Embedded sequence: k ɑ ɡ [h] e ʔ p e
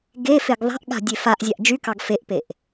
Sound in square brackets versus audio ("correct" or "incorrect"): incorrect